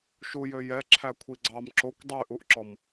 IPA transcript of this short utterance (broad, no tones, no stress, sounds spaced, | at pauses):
ʃ u j ø j ɛ ǁʰ æ kʷʰ i ɡ͡ǀ ɑ m ǁ o kʷ dˤ y ʔ u ʔ ǁ ɔ m